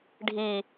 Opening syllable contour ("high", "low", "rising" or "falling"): high